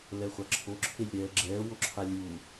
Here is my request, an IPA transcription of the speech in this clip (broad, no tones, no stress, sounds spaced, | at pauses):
l ɛ χʷ a ǁʰ o ǁʰ e lʲ ɾ ɛː ɡ͡ǁ ɛː w o ǁʰ a lʲ uː